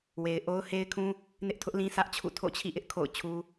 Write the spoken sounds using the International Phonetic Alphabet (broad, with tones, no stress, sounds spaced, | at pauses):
w e˨ ɪ̯ ʔ o˦ ʊ̯ h e˦ ɪ̯ kʰ ũ˦ | n ɪ˦ ʔ tʰ ʊ˦ ʔ l ĩ˦ sʰ ä˦ ʔ t͡ɕʰ ṵ˦˨ tʰ o̰˦˨ t͡ɕʰ ḭ˦˨ ʔ ɪ˦ ʔ kʰ o̰˦˨ ʊ̯ t͡ɕʰ u˦